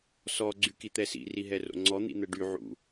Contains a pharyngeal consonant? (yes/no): yes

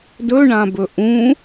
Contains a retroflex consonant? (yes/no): yes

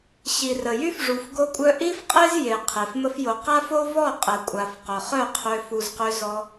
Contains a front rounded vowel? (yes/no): yes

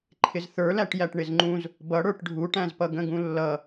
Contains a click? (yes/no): yes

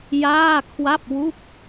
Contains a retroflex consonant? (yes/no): no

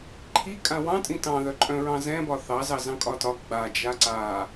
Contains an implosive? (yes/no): no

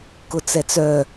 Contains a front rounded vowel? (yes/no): yes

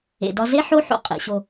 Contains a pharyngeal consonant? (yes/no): yes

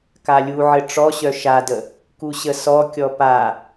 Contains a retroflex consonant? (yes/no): yes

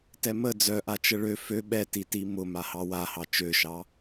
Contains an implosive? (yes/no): yes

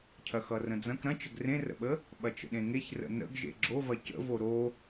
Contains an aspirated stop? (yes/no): yes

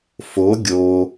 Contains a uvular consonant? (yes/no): no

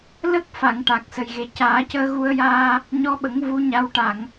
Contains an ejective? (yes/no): no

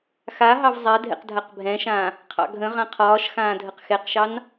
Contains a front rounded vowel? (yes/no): no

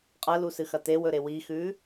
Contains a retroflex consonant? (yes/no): no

